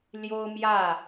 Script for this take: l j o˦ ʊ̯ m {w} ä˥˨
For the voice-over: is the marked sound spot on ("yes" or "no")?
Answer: no